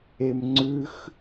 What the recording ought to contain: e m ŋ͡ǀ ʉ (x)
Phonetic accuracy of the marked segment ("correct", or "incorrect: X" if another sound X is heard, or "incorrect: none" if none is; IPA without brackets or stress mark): correct